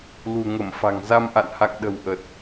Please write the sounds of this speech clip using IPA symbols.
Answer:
l ṳ˨˩ ŋ ə˧˩ m f a̤˨˩ ŋ z a˧ m ʔ a̰˧˨ n h a̰˧˨ ŋ ɗ ə̤˨˩ w ʔ ə˨˩ t̚

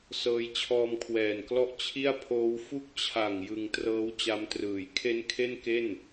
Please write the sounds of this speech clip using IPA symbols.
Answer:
s ɤː˧ j t͡ɕʰ ɔː˧ m kʰ w ɛː˨˩ n k l ɔ˦˥ ʔ t͡ɕʰ i˥˩ a̯ pʰ oː˦˥ w f u˥˩ k̚ t͡ɕʰ a˨˩ ŋ j ɯ˧ ŋ t r ɤː˦˥ w t͡ɕ a˦˥ m t r ɯː˨˩ j kʰ e˦˥ n kʰ e˥˩ n k e˥˩ n

